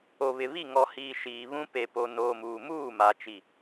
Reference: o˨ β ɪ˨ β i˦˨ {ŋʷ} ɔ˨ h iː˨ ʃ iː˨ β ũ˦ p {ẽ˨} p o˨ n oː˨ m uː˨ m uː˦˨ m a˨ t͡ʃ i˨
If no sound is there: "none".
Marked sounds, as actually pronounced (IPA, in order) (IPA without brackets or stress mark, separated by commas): ŋ, e˨